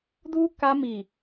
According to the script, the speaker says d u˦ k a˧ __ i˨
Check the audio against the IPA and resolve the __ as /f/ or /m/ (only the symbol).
m